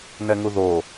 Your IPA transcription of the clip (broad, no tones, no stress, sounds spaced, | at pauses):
n ɛ ŋ u ð o